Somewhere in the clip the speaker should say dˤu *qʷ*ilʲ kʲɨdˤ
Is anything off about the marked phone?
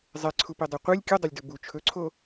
no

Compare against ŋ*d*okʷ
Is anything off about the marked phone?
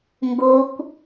yes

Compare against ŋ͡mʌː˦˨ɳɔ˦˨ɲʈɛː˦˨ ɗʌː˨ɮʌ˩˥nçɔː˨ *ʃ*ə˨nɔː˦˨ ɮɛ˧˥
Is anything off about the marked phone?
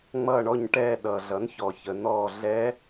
yes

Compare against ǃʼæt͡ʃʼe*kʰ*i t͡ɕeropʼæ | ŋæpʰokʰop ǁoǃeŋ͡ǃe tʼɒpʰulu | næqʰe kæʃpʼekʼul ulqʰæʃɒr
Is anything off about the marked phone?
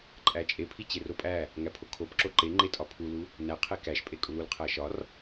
yes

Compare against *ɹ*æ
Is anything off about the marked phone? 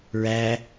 no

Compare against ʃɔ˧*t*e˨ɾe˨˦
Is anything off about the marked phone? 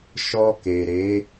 yes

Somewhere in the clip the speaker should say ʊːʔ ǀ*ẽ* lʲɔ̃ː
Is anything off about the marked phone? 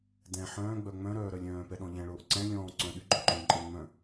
yes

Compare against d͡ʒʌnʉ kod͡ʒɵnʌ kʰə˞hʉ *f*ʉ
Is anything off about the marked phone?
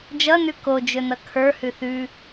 yes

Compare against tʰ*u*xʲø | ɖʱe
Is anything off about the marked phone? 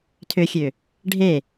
yes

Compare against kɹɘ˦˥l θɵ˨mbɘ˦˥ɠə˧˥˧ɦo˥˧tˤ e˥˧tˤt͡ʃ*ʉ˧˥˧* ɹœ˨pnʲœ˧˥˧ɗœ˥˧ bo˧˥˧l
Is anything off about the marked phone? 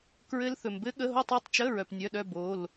yes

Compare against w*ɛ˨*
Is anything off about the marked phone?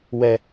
yes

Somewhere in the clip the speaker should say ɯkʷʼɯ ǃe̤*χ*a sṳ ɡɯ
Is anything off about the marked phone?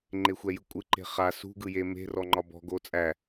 no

